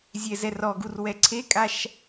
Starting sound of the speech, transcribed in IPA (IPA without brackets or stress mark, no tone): zʲ